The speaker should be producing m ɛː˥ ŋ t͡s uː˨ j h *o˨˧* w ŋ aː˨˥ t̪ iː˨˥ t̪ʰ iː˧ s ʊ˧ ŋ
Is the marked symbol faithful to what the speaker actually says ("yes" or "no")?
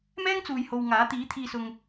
no